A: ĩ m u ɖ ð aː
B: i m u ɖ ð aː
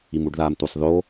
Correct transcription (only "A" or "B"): B